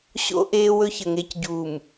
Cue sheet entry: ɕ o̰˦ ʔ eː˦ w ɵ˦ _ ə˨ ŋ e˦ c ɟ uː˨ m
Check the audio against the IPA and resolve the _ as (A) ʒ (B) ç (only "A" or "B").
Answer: B